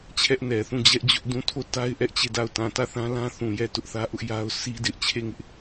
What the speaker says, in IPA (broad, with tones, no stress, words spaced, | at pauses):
t͡ɕʰɛ˦ʔnɛ˨θũ˦˨ d͡ʑɛ˦ʔd͡ʑʊ˦ʔ dũ˦˨ tʰo˦˨ta˦ɪ̯ ʔɛ˦ʔt͡ɕe˦˨da˦˨ʊ̯ tã˨tä˦˨θã˦ lã˦θũ˨jɛ˦˨ tʊ˦ʔθä˦ʔʊ˦ʔ ja˦ʊ̯ sʰi˦dɪ˦ʔ t͡ɕʰe˦˨ŋɪ˦ʔ